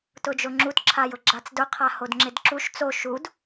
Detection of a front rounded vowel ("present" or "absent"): absent